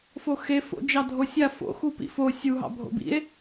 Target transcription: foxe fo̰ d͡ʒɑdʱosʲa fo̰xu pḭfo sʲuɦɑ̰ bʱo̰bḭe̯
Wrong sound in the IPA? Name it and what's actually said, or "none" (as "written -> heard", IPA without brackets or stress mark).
none